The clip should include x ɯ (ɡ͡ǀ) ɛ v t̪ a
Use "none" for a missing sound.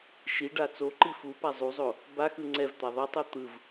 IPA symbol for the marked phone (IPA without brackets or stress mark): ŋ͡ǀ